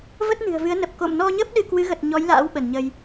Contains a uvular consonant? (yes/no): no